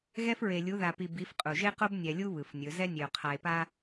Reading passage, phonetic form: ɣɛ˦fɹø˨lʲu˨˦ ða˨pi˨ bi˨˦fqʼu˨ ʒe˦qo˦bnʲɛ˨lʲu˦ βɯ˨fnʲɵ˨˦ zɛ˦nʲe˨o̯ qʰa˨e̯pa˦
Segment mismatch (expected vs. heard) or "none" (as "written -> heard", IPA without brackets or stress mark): ø˨ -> e˨